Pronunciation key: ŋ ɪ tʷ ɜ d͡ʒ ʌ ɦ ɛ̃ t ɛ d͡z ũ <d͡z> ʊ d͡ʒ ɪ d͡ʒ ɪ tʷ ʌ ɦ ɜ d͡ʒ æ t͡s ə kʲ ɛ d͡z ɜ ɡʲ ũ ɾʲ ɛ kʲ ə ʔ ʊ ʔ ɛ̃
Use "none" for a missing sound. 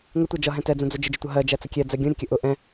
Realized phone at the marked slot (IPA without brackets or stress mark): d͡z